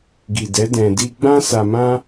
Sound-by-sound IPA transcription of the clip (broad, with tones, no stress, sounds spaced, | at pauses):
ɡ i˨ d ɛ˨˦ d ɛ̃˧ d i˦ ɡ͡b ã˦ s a˧ m ã˦